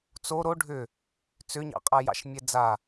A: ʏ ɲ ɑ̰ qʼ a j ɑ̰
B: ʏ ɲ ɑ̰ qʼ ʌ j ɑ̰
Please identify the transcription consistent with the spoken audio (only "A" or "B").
A